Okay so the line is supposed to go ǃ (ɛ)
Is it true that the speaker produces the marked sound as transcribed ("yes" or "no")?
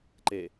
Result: no